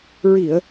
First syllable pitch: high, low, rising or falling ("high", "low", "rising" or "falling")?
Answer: low